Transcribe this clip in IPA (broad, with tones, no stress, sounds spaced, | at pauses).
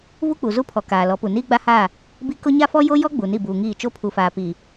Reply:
v u˦ k͡p u˨ z u˦ pʰ ɔ˨ k aː˨ l ɔ˨˦ p u˨ n iː˦ ɡ͡b a˦ h aː˦˨ | b i˦ k ʊ˦ ɲ a˦ f ɔ˦ j o˦ j ɔ˦ ɡ͡b u˨ n i˦˨ b uː˨ ŋ iː˦˨ t͡ʃ o˦ pʰ u˨ f aː˨ p iː˨